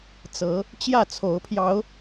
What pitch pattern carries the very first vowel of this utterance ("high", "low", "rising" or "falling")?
rising